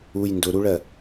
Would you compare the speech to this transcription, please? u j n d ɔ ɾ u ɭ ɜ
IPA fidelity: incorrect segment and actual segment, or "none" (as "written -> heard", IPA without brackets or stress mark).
ɔ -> ʊ